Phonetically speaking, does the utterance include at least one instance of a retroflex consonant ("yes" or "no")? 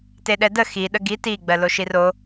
no